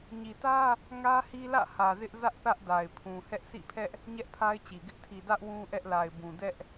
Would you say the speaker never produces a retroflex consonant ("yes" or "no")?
yes